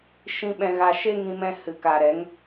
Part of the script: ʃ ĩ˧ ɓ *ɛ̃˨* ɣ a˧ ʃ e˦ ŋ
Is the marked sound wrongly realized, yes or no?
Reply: yes